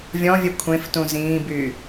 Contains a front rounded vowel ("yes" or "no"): yes